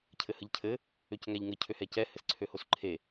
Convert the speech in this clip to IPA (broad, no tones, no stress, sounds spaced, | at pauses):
cʰ ɘ h ə ʎ cʰ ɘ | ø c ŋ æ ʎ ŋ ɘ cʰ ø h ɛ c ɛ h ɘ s ǀʰ ø h o s ǃʰ e